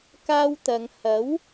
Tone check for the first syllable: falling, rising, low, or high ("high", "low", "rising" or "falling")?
high